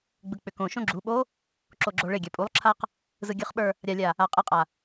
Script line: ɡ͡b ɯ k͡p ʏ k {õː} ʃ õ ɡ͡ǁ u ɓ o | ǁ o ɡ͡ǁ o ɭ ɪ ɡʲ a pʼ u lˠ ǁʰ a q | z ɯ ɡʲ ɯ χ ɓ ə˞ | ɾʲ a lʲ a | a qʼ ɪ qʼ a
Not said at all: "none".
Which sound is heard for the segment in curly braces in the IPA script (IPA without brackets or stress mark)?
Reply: õ